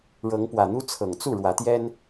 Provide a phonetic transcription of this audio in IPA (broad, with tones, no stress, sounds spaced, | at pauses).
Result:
ɻ ɤ˨˦ ŋ p w ä˨˩ n̪ u˦ t͡sʰ ɤ˨˩ ŋ t͡s u˥˨ ɻ w ä˨˦ t̪ j ɛ˦ n